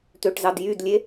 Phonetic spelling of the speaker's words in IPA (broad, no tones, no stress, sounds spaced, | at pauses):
t̪ ø ʈ z ɑ d j y d lʲ e